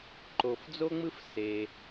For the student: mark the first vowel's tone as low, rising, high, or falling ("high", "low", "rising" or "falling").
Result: low